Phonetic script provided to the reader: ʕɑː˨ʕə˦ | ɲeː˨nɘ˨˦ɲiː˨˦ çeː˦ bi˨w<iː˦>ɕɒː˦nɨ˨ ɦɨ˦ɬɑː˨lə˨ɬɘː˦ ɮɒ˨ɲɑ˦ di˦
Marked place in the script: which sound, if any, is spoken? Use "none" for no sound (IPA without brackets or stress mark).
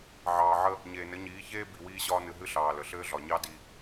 iː˦